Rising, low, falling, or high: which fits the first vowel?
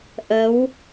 rising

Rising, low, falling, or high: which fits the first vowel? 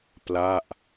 falling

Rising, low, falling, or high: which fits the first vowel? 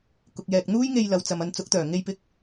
low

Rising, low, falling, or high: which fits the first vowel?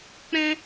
high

